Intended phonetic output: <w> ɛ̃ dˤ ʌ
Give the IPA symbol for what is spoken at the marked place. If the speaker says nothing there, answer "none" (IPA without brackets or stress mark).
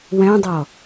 w